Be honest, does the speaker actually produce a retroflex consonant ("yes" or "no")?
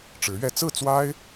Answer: yes